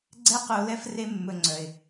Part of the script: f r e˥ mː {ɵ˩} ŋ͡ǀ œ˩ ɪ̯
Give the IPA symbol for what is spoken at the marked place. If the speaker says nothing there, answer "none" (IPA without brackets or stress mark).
ɵ˧